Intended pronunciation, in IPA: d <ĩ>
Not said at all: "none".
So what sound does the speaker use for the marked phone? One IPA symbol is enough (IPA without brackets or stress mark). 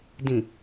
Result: ĩ